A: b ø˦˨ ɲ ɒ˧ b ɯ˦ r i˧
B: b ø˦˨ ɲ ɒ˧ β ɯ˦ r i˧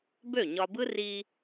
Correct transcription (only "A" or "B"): A